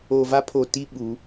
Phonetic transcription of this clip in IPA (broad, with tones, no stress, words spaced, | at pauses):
o˨va˦pʰo˨ti˦ ɓu˨˦